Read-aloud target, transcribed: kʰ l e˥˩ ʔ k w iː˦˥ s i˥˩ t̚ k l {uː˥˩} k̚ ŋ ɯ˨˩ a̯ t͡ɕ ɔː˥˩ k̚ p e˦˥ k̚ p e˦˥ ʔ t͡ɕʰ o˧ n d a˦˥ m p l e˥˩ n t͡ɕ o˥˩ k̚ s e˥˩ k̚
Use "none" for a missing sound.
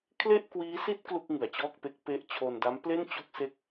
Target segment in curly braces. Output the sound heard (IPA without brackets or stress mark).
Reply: u˥˩